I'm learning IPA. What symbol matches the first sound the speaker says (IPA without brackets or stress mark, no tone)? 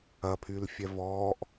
ɐ